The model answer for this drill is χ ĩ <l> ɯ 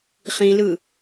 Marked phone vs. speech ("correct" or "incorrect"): correct